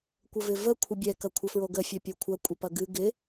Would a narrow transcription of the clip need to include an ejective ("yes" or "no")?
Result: yes